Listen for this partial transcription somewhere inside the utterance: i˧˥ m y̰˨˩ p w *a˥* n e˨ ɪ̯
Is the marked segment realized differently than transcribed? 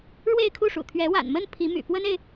yes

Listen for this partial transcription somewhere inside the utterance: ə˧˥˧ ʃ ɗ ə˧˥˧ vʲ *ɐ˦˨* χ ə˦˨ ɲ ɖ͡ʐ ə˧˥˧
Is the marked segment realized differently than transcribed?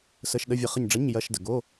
yes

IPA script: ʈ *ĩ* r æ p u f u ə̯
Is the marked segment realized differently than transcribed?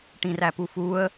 no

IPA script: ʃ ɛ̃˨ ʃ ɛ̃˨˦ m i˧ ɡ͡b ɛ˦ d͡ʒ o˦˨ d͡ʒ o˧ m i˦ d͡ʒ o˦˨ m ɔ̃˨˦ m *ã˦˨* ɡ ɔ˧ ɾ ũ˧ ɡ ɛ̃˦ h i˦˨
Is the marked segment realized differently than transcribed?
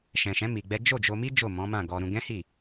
no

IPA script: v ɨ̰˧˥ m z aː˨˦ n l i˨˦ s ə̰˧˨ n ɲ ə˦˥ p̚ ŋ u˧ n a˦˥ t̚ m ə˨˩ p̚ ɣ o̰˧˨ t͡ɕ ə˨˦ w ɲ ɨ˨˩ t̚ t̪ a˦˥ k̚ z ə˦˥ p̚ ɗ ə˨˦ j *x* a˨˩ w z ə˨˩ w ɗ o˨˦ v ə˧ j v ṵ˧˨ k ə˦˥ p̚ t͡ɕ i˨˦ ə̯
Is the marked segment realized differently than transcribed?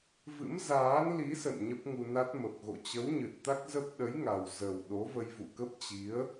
yes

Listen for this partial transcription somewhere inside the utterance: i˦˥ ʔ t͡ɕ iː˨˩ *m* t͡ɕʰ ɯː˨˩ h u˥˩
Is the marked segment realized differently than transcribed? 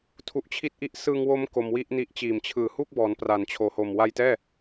no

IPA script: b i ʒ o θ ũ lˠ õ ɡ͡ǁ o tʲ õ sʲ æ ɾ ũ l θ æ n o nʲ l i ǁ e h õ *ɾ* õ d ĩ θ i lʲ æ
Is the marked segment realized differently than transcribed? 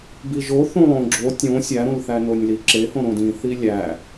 no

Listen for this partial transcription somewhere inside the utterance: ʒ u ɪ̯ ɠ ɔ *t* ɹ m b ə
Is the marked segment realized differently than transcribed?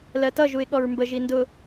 yes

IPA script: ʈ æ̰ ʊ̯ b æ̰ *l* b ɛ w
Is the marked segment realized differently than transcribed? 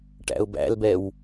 no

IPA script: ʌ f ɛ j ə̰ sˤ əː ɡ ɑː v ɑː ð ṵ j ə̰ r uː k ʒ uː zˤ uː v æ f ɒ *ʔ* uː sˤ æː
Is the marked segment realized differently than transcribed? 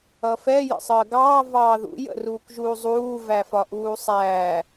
no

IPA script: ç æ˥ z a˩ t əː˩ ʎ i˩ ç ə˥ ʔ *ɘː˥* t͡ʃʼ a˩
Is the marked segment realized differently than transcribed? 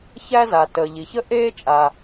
yes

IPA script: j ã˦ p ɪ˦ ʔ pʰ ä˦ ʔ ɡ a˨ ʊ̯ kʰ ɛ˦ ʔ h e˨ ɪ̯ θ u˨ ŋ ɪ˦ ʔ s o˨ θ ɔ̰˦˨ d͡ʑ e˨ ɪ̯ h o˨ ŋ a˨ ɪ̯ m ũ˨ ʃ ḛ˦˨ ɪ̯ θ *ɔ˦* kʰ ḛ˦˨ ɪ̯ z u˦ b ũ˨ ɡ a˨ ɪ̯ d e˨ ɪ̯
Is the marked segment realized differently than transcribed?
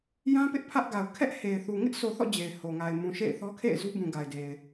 no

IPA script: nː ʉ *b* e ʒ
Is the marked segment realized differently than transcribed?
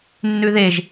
yes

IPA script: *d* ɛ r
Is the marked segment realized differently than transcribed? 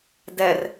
no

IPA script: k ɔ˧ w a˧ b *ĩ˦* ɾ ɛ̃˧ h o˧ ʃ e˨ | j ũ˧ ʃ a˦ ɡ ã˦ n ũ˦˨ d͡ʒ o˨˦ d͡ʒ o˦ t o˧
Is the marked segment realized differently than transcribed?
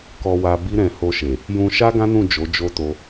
yes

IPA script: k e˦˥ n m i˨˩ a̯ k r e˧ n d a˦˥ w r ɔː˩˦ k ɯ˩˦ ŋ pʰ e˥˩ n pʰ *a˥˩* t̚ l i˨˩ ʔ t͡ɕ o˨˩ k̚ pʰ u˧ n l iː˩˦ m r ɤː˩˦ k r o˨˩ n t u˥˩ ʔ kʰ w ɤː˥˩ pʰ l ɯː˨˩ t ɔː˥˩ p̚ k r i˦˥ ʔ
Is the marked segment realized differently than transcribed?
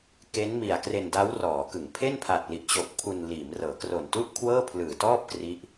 yes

